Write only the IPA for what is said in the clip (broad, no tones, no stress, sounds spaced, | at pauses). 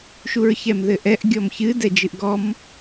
ʃ u ɹ ç ɛ m ð ɘ ʔ ɛ ʔ ɡʲ ɔ m ç ɨ d ɛ d͡ʒ ɨ ʔ ɡ ɔ m